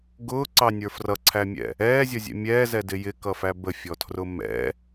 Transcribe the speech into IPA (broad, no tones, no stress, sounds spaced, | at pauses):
ɡ ʊː ǀ ɑ nʲ ə˞ f r ʌ ǀʰ æ mʲ ɛ̰ | ɛː zʲ ʌ zʲ ɛ̰ mʲ ɛː z ɛ d ɪ j ɪ k ʌ f æ b ə fʲ ɔ tʰ r ʊ m ɛ̰